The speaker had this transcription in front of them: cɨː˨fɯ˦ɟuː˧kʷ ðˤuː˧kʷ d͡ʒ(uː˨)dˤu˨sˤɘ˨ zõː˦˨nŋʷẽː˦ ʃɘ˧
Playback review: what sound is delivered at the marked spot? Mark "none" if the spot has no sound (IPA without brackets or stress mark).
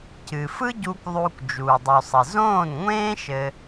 uː˨